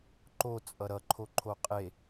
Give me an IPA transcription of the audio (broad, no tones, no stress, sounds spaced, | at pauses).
ǃ o t͡sʼ ʌ ɾ ʌ ǃʰ o ǃʰ o qʼ e